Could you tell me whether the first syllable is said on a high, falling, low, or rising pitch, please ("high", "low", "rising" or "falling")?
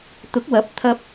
rising